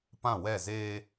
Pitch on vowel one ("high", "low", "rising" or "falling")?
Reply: falling